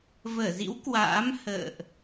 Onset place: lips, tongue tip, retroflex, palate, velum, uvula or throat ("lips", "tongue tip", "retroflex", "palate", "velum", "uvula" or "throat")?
lips